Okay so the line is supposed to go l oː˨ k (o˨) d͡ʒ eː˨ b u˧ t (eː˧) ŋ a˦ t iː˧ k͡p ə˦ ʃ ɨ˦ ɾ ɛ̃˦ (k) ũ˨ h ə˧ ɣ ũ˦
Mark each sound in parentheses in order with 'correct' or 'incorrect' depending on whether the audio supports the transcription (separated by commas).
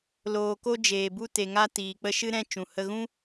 incorrect, incorrect, incorrect